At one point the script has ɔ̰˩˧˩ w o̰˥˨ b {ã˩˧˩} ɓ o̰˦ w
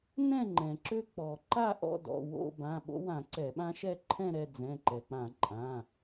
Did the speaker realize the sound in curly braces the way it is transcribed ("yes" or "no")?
yes